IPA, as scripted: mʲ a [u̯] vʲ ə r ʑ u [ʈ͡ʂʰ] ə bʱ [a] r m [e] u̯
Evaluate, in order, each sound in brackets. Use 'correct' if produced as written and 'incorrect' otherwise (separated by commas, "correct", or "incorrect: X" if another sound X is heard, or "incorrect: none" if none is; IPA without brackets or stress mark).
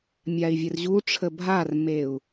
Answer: incorrect: i̯, correct, correct, correct